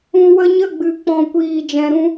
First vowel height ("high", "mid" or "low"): high